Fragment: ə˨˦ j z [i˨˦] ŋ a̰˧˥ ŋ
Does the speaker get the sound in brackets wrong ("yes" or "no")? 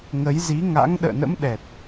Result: no